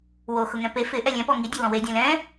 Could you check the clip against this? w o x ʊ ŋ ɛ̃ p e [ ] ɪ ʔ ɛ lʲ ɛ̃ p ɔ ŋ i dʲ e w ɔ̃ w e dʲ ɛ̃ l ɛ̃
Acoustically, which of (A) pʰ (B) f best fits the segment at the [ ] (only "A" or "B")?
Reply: B